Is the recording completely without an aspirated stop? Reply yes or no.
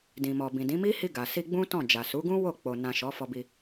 yes